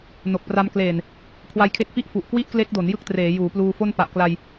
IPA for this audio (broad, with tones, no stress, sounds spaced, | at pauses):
n o˨˩ k̚ p r a˧ m k l eː˨˩ n | kʰ w a˧ j kʰ e˦˥ k̚ f i˥˩ ʔ f u˨˩ ʔ k w i˥˩ ʔ k l e˦˥ k̚ d o˩˦ n j ɯ˥˩ k̚ t r eː˩˦ j uː˩˦ p l uː˧ f o˥˩ n p a˨˩ ʔ k l a˧ j